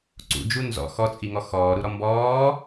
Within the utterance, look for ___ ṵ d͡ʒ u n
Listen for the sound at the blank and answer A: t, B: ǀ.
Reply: B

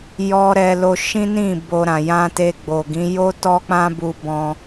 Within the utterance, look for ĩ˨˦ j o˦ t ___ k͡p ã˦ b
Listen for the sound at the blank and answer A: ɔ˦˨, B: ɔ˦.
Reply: B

